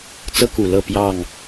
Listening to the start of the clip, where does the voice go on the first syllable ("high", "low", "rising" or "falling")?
high